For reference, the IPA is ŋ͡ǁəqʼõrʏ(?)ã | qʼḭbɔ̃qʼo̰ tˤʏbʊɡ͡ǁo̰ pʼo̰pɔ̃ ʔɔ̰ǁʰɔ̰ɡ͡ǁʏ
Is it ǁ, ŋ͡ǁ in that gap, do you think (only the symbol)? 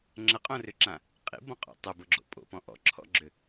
ǁ